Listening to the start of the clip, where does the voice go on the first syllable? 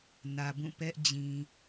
low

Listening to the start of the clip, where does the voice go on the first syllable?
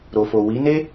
low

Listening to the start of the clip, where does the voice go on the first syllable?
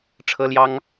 high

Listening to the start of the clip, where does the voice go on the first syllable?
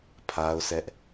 high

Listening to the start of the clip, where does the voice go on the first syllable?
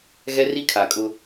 high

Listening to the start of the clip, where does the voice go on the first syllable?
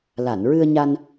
low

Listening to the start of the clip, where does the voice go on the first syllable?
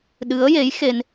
rising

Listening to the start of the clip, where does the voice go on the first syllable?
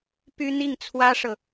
high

